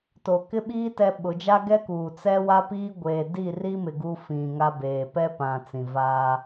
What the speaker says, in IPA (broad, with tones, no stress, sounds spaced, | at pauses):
t o˨ k ɪ˦ ɓ iː˦ t ɛ˦ ɓ ʊ˨˦ d͡ʒ a˦ ɡ ɛ˦ k uː˨ t͡s ɛ˦ w a˦ p iː˦ ɡʷ eː˨ d i˦˨ r i˦ m ɪ˨ ɡ u˦ f ĩ˨ ŋ a˦ b eː˨ p ɛ˦ p ã˨ t͡s ĩ˨ v aː˦